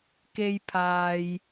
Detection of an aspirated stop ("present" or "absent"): present